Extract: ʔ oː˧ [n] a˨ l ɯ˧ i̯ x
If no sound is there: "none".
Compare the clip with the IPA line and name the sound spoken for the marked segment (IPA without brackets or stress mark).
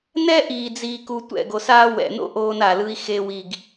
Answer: n